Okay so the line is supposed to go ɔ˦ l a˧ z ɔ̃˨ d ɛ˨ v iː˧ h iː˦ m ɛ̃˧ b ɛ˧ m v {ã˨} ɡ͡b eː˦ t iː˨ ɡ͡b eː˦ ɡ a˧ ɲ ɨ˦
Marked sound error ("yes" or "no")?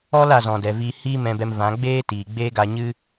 yes